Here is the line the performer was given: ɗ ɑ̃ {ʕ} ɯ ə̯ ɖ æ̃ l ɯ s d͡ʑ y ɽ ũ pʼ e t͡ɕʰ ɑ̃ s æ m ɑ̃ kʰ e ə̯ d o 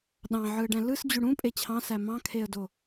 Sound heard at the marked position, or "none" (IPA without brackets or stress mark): ʕ